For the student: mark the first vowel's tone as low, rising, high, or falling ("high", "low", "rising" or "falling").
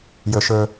low